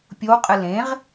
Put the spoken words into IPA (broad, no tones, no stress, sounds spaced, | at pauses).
pʲ o w qʼ ɨ l ẽ ʁ